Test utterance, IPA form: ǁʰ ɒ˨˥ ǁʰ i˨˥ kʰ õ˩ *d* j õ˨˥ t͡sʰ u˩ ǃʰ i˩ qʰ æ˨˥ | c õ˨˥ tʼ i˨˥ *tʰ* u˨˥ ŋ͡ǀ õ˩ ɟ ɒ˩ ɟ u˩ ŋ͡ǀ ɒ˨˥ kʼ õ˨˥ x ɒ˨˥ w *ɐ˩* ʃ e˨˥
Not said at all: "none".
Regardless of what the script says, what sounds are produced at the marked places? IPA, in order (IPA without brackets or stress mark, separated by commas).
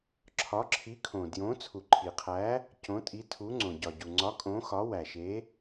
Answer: d, tʰ, æ˩